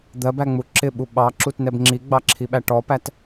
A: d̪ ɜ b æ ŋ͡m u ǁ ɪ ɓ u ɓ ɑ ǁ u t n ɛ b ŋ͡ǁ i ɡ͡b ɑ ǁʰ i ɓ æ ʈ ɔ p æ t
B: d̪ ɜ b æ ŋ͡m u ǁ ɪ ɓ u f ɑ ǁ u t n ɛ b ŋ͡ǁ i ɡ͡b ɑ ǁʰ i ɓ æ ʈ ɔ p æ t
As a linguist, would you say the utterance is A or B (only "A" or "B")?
A